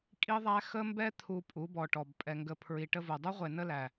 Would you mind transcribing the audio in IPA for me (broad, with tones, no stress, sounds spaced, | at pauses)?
kʼ i˦ ðˤ æ˦ x ə˦ m b ɛ˦ t̪ʰ u˨ pʼ u˨˦ b ɔ˨ ʈ ɔ˨ b pʼ ɛ˨ ŋ ɡ ə˨ pʰ ɹ i˨ ʈ ə˦ v u˨ dˤ u˦ ʁʷ e˨ n ə˦ l æ˨